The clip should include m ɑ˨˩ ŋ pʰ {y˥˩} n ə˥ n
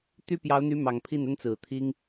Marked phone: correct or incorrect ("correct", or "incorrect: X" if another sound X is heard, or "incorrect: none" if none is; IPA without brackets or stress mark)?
incorrect: i˥˩